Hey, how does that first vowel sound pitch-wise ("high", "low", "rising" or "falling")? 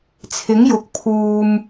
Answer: rising